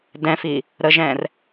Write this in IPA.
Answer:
d ɛ̃ f i | ɾ ə ʒ ɛ̃ r

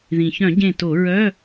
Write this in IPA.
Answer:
ð ĩ˩ ç œ̃˧˩˧ ɟ ẽ˧˩ t o˧˩˧ ɹ œ˧˥˧

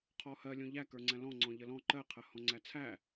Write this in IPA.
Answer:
qʰ ɔ h ɜ lʲ õ ʎ æ k ə˞ ŋ͡ǀ æ̃ l ɔ̃ ŋ͡ǀ ɔ̃ ʎ ə l ɔ̃ ǃ ɜ qʰ ɜ h ɔ̃ ŋ͡ǀ æ t͡sʰ æ

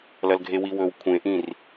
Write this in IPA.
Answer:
l ɐ l ɡʱ e w i w ɵ w kʷʰ ẽ ʔ ĩ r

